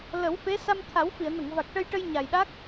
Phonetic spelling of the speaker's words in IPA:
l ə˨˩˦ w f e˧˥ s a˧ m t̪ʰ a˨˩˦ w f i˨˩˨ ə̯ n ə˨˩˨ ŋ v a˨˩ k̚ ʈ ə˧ j ʈ ə˧ j ɲ a˨˩ j ɗ a˦˥ k̚

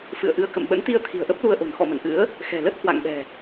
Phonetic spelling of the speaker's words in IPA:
f ɨ̰˧˨ ə̯ ʔ ɨ˧ ə̯ k ə̰˧˨ m ɓ ə̰˧˥ n t̪ i˧ ə̯ t̪ʰ i̤˨˩ ə̯ ʔ ə˦˥ p̚ l u˧ ə̯ ʔ o̤˨˩ n x ɔ̰˧˨ m ə̰˧˨ n ʔ ɨ̰˧˥ ə̯ | x ɛ̤˨˩ l ə˦˥ t̚ h w a̰˧˨ ŋ ɓ ɛ̤˨˩

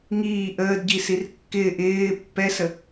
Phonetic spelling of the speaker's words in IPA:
ŋ iː ʔ əː d ɟ i s i r kː ɪː ʔ ɪː pː ɛ s ə

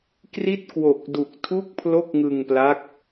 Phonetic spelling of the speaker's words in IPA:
k r i˥˩ t̚ k w o˨˩ k̚ d u˨˩ k̚ tʰ u˥˩ k̚ pʰ l o˥˩ k̚ ŋ ɯ˧ ŋ p l a˦˥ k̚

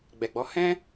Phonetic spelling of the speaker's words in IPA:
ɡ͡b ɛ˨ ɡ͡b ɔ˨˦ h ɛ̃˦

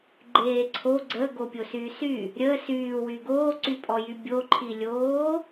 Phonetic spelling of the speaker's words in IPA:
ɡ͡ǃ eː ǀʰ o ɡ͡ǀ ə ɡ o pʲ o s yː s y | ɾʲ ə s yː w y ɡ oː ǀ y pʼ ɔ j y bʲ o ǃʰ i lʲ oː

